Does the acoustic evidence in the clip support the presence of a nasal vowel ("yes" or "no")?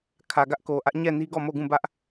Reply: yes